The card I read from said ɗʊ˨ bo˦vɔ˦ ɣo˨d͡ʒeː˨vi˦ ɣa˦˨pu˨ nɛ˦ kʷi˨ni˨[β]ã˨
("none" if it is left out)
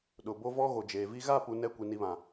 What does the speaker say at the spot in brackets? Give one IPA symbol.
β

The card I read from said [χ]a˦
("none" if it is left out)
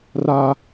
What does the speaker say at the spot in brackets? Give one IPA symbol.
r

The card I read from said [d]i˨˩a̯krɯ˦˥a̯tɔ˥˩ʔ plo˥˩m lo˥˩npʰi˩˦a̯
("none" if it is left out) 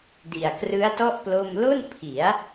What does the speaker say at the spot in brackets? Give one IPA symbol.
d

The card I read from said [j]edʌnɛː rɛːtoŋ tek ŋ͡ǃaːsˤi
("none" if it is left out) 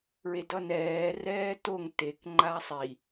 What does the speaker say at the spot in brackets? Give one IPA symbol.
ɹ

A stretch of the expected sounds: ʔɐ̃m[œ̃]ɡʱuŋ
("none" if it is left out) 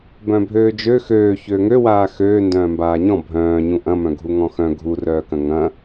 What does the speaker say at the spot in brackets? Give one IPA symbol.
œ̃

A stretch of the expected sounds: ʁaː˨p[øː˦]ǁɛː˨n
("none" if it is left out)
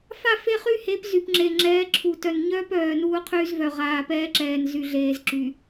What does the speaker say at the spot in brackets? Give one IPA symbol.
ɛː˦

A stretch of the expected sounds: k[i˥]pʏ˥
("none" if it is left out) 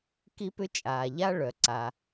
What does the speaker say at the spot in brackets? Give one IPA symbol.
i˥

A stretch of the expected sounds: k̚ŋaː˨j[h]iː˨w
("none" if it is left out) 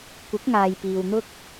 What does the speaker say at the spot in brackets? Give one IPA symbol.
p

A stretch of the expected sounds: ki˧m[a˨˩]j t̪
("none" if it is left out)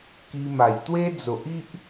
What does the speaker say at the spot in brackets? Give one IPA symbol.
a˨˩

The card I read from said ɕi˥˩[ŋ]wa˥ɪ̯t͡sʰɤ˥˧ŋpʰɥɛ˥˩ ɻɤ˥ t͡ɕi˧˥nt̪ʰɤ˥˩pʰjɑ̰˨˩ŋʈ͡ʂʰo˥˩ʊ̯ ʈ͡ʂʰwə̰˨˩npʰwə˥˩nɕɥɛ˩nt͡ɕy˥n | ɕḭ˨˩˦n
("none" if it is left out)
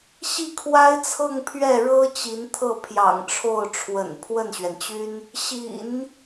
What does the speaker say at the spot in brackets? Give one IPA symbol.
kʰ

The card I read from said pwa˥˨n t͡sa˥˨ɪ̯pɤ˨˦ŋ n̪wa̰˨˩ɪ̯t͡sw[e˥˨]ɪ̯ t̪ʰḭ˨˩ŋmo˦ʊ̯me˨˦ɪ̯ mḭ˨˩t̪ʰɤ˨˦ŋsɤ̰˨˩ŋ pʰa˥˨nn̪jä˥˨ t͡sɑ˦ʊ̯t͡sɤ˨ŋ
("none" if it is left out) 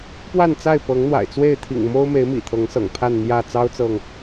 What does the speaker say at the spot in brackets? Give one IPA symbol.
e˥˨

